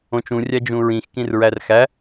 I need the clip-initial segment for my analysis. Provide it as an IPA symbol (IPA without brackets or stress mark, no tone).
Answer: õ